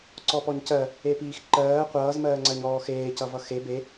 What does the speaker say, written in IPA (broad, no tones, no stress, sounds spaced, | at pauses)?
ǀ ɔ p ɔ ɲ c ɜ | e p iː x ǃ ɜː qʷ ʌː z m ɜː ŋ͡ǀ ɜ ɲ ɔː x eː c ʌ v ʌ x e b e